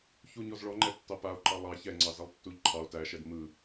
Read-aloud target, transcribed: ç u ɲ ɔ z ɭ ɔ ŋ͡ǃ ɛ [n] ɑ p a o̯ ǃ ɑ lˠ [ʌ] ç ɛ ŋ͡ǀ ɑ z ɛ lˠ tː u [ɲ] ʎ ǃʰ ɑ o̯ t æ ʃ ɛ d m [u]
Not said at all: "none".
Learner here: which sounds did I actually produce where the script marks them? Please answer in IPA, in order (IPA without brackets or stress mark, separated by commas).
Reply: tː, ɑ, none, ɯ